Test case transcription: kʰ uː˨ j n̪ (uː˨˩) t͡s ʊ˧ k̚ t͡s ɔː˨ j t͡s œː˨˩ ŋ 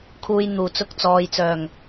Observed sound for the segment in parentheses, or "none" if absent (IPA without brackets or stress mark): uː˨˩